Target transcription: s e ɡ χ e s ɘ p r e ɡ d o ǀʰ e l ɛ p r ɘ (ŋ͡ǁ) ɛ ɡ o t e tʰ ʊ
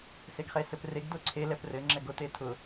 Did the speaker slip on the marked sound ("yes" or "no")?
no